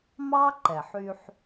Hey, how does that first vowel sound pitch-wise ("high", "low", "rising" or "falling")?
high